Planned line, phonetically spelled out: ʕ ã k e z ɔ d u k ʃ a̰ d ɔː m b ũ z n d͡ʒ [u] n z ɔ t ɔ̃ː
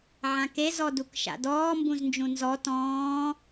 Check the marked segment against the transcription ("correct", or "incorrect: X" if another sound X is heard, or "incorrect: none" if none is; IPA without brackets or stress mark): incorrect: ũ